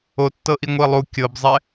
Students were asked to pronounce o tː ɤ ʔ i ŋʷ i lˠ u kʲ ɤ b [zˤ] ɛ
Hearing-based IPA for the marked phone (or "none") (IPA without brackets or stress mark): zˤ